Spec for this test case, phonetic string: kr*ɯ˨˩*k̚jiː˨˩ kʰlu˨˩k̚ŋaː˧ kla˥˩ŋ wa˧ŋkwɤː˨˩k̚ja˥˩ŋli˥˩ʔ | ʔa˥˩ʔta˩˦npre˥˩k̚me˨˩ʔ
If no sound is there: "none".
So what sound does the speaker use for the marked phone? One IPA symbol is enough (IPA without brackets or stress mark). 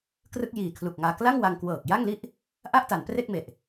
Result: ɯ˥˩